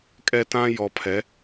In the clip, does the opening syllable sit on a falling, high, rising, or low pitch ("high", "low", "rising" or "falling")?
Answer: high